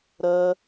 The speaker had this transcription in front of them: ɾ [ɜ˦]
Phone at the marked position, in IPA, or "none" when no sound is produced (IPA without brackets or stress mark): ɜ˦